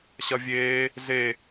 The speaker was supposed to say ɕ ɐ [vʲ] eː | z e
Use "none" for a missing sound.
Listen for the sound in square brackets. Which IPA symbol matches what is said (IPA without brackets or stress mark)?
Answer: vʲ